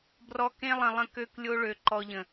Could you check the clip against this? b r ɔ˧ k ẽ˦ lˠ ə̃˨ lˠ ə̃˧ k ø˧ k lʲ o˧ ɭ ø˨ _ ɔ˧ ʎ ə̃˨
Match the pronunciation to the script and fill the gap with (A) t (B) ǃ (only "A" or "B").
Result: B